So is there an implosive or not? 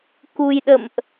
yes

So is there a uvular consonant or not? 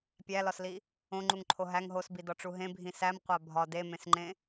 yes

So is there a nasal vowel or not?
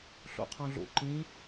yes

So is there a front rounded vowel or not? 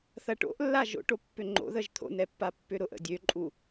yes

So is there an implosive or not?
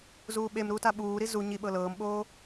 yes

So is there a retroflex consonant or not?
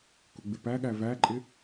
no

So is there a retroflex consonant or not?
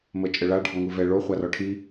yes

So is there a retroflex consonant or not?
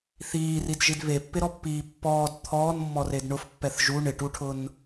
yes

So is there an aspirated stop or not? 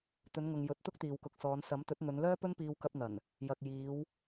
no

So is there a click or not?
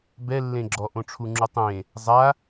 yes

